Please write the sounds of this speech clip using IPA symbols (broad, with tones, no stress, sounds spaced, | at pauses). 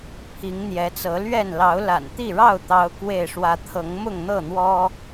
pʰ i˨˦ ŋ n̪ j ɛ˨˦ t͡s ɤ˨˦ l ɥ ɛ˥˨ n l ɑ˨˦ ʊ̯ l a̰˨˩ n t̪ i˥˨ ɻ ɑ˥˨ ʊ̯ t̪ ɑ˦ ʊ̯ k w e˥˨ ɪ̯ ʂ w ä˦ t̪ʰ ɤ˨˦ ŋ m ʊ˥˨ ŋ n̪ ɤ˥˨ n̪ w ɔ˦